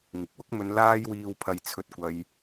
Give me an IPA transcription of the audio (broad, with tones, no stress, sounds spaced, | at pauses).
ŋ ɪ˨ k̚ w ʊ˥ k̚ m ɵ˧ n l aː˧ j w iː˨ w pʰ ɐ˨ j t͡sʰ ɵ˧ t̚ kʷ ɐ˧ j